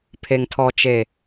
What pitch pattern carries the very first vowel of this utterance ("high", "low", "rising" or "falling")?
low